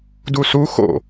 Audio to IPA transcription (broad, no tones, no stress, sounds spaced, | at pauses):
d u s u x o̰